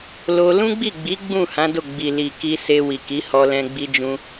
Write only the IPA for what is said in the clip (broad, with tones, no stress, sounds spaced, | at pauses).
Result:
l o˧ l ũ˦ ɡ͡b i˦˨ ɡ͡b i˨˦ ɡ͡b ũ˦˨ h ã˨˦ d o˦˨ ɡ͡b i˨ l i˨ k i˧ s e˧ w i˨ k i˨˦ h ɔ˧ l ɛ̃˧ ɡ͡b i˧ d͡ʒ ũ˧